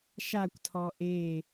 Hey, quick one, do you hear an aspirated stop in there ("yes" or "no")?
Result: yes